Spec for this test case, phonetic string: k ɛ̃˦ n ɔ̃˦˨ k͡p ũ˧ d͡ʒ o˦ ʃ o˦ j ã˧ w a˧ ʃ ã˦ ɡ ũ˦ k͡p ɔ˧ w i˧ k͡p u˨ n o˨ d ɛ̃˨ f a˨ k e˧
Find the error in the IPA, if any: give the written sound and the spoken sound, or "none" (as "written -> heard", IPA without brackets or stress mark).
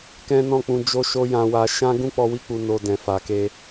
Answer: none